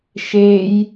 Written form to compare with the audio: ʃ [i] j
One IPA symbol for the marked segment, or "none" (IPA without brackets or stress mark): e